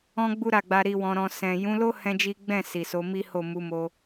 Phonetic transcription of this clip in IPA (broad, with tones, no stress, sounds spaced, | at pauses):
ɔ̃˦ ɡ͡b u˦ ɾ a˦˨ ɡ͡b a˧ ɾ i˧ w ɔ̃˧ ɾ ɔ̃˧ s ɛ̃˨ j ũ˨˦ l o˦ h ɛ̃˦ d͡ʒ i˦ ɡ͡b ɛ̃˦˨ s i˨ s o˨˦ m i˦ h o˦˨ m u˨˦ m o˧